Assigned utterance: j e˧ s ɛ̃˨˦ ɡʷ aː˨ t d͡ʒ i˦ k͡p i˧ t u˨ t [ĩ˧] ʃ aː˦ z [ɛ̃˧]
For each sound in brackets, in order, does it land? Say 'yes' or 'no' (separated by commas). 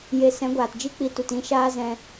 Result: yes, yes